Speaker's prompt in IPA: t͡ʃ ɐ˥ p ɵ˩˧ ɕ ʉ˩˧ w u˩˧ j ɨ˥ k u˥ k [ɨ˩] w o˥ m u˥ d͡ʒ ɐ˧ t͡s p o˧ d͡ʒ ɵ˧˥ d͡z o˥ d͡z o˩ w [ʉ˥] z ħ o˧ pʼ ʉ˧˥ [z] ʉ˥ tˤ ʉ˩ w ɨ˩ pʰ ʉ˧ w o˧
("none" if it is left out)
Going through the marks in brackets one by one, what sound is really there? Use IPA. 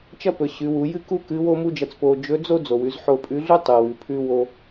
ɨ˧˥, ʉ˩˧, ɮ

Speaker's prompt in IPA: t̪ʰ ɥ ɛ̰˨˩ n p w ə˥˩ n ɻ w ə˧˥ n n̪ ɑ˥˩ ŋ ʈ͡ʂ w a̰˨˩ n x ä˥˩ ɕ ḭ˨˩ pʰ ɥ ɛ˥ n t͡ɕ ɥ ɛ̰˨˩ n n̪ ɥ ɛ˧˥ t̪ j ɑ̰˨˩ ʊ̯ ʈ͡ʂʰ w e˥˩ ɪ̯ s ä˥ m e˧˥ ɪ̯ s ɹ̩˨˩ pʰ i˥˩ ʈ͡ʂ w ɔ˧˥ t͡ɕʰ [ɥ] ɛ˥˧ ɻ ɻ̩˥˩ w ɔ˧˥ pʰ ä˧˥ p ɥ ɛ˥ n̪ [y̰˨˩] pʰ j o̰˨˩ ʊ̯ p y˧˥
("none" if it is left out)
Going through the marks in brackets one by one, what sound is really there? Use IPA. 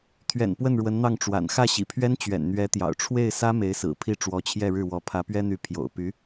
j, y˧˥

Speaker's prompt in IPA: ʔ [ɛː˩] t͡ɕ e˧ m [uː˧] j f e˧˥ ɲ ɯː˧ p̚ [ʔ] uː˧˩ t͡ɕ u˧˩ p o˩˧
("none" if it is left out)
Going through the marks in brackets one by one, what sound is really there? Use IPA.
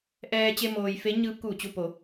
ɛː˧, oː˧, k

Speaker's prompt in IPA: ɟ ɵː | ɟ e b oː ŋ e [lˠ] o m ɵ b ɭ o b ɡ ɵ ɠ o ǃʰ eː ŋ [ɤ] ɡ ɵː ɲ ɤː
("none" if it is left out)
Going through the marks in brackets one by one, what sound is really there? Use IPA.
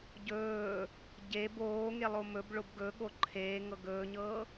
lˠ, ɤ

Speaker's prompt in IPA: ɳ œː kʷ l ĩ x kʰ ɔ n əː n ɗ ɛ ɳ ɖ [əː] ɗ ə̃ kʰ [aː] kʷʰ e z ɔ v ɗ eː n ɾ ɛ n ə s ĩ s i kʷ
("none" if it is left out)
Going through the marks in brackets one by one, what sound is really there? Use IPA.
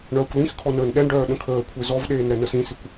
œː, əː

